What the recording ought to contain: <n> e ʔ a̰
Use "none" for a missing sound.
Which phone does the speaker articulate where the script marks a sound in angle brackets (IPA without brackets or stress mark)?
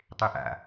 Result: tˤ